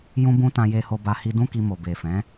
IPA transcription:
jũ˦bũ˦ tã˧je˧ho˧ba˧ hi˧dũ˦ki˧mo˨ be˨fɛ̃˨˦

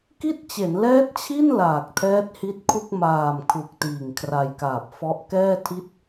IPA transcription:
ki˥˩t̚t͡ɕe˩˦n lɛː˦˥t̚t͡ɕʰi˥˩n laː˨˩k̚tʰɛː˦˥t̚hi˦˥t̚kʰu˥˩k̚ maː˨˩m kʰu˨˩k̚tiː˨˩ŋ kʰra˧jkaː˨˩p̚fɔ˦˥ʔ kɛː˥˩ tʰi˦˥t̚

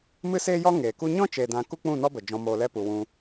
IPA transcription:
mɨ˦seː˦jɔ˦ ŋeː˨ku˦ ɲɔ̃˦t͡ʃeː˨ dã˧ ku˦k͡pũ˦˨nɔ˦bə˨ d͡ʒɔ̃˧moː˧lɛ˦ pu˨wũ˧

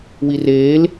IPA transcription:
wireːl

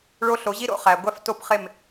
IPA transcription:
ɭo˧ ɬo˩˥ʑi˥ɾo̰˧ χæ˩ɡʷæ˥fto˥˩pχe˥˩m

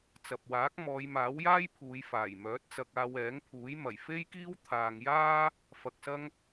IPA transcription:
t͡sɐ˨p̚waː˨˥k̚ mɔː˨˧jmaː˨˥w jaː˥jpʰuː˨˧j faː˨˩j mœː˨˥t̚t͡sɐ˧k̚aː˧w ɛː˨˥ŋpʰuː˨˥j mɐ˨˩jfe˥jkiː˥w t̪ʰaː˧ŋ jaː˥ | fɐ˧k̚sɐ˥ŋ

